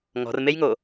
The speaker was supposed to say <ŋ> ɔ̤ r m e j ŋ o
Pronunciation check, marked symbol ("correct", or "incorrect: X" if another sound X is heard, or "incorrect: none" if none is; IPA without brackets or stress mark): correct